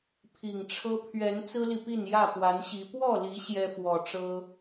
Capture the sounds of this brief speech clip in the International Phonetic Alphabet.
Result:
pʰ i˨˩ ŋ ʈ͡ʂʰ ɤ˦ pʰ ɥ ɛ˨˦ n t͡s ɹ̩˦ l i˨ p i˥˨ n j ä˥˨ p w a˨˦ n ɕ i˨˦ p w ɔ˥˨ l i˨˦ ɕ j ɛ˦ f w ɔ˨˩ ʈ͡ʂ ɤ˦

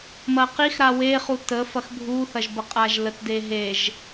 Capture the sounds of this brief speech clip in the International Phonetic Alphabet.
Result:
m ɐ q i x ɾ a w e χ u t ə f ɐ x bʱ u θ ɐ ʒ b ə qʼ a ʒ l ə t d e ɦ e ʒ

